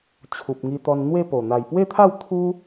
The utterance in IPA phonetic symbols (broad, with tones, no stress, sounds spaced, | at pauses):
t͡ɕʰ u˨ p̚ ŋ i˧ t̪ ɔ˧ n n̪ w e˥˧ p o˨˩ n̪ a˨˩ j p w e˥˧ t̪ʰ a˥˧ w t̪ʰ u˦